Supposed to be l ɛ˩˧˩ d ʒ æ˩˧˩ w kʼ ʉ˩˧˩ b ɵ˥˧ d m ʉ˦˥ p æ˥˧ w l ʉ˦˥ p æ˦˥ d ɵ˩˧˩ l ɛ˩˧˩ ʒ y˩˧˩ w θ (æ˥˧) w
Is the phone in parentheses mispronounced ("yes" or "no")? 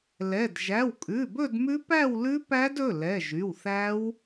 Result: yes